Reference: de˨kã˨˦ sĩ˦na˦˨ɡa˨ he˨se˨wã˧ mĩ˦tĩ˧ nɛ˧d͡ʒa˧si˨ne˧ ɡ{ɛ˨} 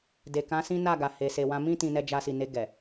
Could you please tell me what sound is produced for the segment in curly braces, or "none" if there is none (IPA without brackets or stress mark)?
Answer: ɛ˨